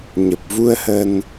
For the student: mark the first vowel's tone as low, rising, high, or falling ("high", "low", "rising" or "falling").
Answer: low